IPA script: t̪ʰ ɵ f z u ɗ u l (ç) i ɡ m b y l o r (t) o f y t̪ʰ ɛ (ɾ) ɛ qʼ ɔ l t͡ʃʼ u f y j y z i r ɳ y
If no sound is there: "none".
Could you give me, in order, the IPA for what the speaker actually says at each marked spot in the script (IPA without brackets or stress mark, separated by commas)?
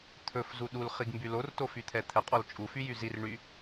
χ, t, t̪ʰ